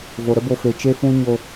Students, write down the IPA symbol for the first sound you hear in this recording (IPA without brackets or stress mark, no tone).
v